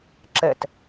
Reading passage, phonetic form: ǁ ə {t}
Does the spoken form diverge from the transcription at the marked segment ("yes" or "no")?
no